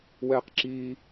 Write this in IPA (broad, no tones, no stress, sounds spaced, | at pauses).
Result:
w ɛː q ǁ iː